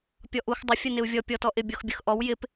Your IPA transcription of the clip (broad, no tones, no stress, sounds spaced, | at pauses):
pʲ ɔ ʔ u x dˤ ɪ fʲ ə n ɪ u̯ vʲ ɔ pʲ ɔ t ɔ ʔ ɪ bʲ ɔ x bʲ ə x ʔ ɔ w j ɪ p